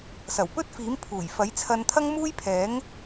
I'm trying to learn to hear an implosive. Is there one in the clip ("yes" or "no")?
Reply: no